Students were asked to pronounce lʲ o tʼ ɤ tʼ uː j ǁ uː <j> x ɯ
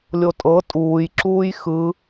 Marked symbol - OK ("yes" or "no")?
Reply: yes